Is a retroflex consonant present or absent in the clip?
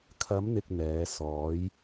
absent